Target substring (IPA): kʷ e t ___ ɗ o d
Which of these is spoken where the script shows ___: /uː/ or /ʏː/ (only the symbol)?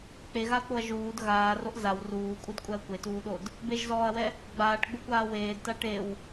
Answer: uː